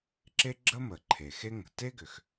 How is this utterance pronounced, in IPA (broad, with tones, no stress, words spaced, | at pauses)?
ǁe˥ɡ͡ǁə˥ mə˩ǃʰe˩xe˥ ŋə̤˩ te˥ɡʏ˩x